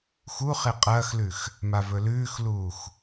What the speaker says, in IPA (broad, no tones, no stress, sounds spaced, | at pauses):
x u χ e qʼ ɐː x l ʉ x | m a v ɵ l ʉː x l uː x